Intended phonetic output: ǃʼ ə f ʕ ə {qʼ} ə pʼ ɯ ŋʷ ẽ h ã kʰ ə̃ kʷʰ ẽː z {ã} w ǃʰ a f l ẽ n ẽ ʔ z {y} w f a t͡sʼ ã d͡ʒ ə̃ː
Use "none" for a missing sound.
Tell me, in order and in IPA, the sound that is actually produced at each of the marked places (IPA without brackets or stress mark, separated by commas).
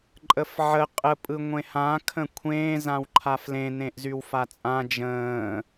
qʼ, ã, y